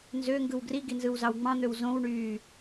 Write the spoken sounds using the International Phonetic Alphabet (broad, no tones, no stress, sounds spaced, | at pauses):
n z ø ŋ ɡ ɯ w ɡ r i ɡ i n z ɯ w z ɑ w ŋ͡m ɑ̃ n̪ ø w z õ w ɳ yː